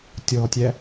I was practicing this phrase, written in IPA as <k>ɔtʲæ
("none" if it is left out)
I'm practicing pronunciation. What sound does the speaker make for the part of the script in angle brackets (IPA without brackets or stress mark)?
tʲ